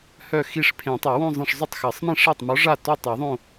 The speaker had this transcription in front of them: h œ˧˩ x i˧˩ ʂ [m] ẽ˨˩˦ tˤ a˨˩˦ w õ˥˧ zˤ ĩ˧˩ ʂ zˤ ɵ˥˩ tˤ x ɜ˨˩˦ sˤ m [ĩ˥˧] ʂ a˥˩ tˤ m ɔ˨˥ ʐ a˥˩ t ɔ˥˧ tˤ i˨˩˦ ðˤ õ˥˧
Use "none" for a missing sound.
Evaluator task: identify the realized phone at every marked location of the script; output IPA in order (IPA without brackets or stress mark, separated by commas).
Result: pʰ, ĩ˥˩